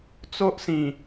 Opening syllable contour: high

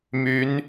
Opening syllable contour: rising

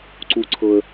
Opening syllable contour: low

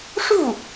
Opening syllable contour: falling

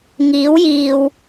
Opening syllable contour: rising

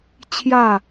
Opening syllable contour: falling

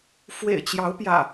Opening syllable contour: low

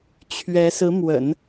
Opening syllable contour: rising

